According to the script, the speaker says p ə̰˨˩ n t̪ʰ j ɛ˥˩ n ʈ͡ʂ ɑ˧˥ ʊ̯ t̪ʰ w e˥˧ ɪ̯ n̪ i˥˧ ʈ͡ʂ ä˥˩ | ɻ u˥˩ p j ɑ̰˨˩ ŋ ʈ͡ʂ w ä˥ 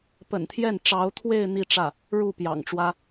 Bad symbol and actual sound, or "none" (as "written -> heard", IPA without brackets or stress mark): none